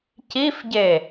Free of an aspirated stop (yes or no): yes